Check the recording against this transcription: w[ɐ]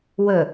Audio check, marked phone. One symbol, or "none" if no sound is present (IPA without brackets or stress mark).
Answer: ə